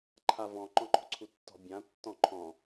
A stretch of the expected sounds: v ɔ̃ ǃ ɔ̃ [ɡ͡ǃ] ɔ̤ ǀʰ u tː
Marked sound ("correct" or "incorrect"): incorrect